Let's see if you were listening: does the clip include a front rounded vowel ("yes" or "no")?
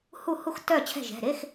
yes